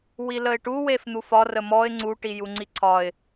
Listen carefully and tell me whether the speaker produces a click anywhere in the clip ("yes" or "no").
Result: yes